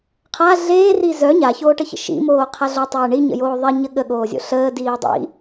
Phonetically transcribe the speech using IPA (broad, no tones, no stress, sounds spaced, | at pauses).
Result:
qʰ a ɮ eː r i z œ ɲ a ç oː ʈ ə ç ə̰ ʃ ḭ m oː qʰ a ɮ o tˤ eː ɳ i ɲ ə̰ j oː ðˤ e ɲ ə ɠ ə ɠ oː zʲ o̰ ɬ əː d iː dˤ ḭ